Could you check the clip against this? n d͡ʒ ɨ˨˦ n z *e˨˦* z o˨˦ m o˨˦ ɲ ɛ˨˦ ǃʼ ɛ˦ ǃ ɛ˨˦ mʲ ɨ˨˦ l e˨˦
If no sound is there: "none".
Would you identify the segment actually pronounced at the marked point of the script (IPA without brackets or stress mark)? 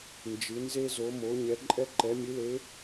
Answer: e˦